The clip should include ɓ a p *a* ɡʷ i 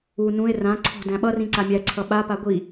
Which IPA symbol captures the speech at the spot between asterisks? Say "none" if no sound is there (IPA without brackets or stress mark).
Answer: a